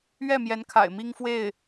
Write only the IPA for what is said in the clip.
ɥ ɛ˥˩ m j ɛ˧˥ n kʰ a̰˨˩ ɪ̯ m i˥ ŋ f w e˥˩ ɪ̯

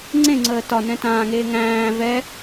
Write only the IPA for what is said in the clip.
ŋ͡ǀ ẽ ŋ͡ǀ əː t ɒ n ɛ̃ t ãː ŋ eː ŋ æ̃ː v ɛ

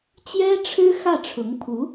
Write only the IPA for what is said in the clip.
t͡ɕ j ɛ˥ ʈ͡ʂʰ ɻ̩˥ x ä˥˩ ʈ͡ʂʰ ʊ˧˥ ŋ pʰ u˧˥

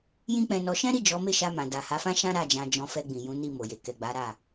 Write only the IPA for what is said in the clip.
j ĩ˦ k͡p ɛ̃˧ n ɔ˧ ʃ ɛ̃˦ ɾ i˦˨ d͡ʒ ɔ˨˦ m e˦˨ ʃ a˧ m ã˨ d a˨ h a˨˦ f ã˦ ʃ ã˦ ɾ a˦˨ d͡ʒ ã˧ d͡ʒ ɔ̃˧ f ɛ˧ ɡ͡b ĩ˨ j ũ˨˦ n i˦˨ m o˨ j e˨ k ɛ˨ ɡ͡b a˨˦ ɾ a˦˨

